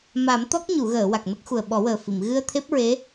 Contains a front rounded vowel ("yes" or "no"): no